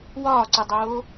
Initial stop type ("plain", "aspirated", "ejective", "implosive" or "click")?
click